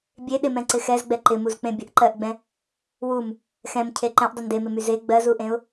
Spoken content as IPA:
bʲ e ɗ ɪ m ɛ̃ ǀ ɪ x ɛ z ɡ͡b ɛ ǃ ɪ m u z k͡p ẽ bʲ ə ʔ ǃ ɜ ʔ ɡ͡b ɛ̃ | w u m | x ɛ̃ m cʰ e ǃ ɛ̃ ʔ dˤ ɪ n d e m ɪ m y z e ɡ͡b ɜ z u ʔ ẽ ʊ̯

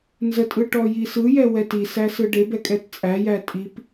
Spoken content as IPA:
n z ə tʼ ɯ ʈ ɔ j i s ɯ j ɛ w ɛ t i s æ s ɯ ɖ e b ɛ kʼ ɛ t t͡sʼ æ j æ tʼ i p

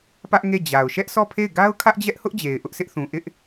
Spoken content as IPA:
p ä˦ ʔ ŋ e˦˨ d͡ʑ a˨ ʊ̯ ʃ ɛ˦ ʔ s ɔ˦˨ pʰ e˦˨ ɪ̯ ɡ a˦ ʊ̯ kʰ ä˦ ʔ d͡ʑ ɛ˦ ʔ h ʊ˦ ʔ d͡ʑ e˨ ɪ̯ ʔ ʊ˦ ʔ s ɪ˦ ʔ θ ũ˨ ʔ ɪ˦ ʔ

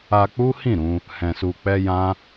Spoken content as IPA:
a˧ k͡p u˦ h ĩ˦˨ ɾ ũ˧ | h ɛ̃˨ s u˨ k͡p ɛ˧ j ã˦

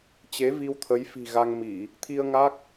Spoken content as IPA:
t͡ɕ e˨˦ v i˧ w t̪ʰ ə˨˦ j f i̤˨˩ ɣ a˧ ŋ m i˧˩˨ | t̪ʰ i˧ ə̯ ŋ a˦˥ k̚

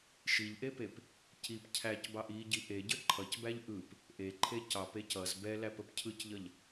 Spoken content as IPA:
ʃ i ʎ ʔ e p e p | c i p cʰ æ c b ɑ ʔ i ɟ i ʔ e ɟ ə ǃʰ ʌ c b æ ʎ ʔ ɯ p | ʔ e ǃʰ e c ɑ p e c ʌ z b ɛ l æ p ə p cʰ ɯ c ʎ ʌ ʎ

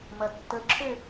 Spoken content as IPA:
m ɐ tː ə ǁʰ ø

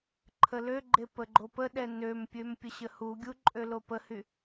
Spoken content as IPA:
ǃʰ ə l ø ɡ͡ǃ e p ə ɡ͡ǃ o p ə ɗ ɛ n ø m pʲ ø m pʲ ə ɕ ə h u ɡʲ u ǃʼ ø l o p ə h y

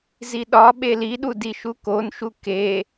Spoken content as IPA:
z i ɗ ɒ ɓ e l i ɗ u d i ʃ u k o n ʃ u k e

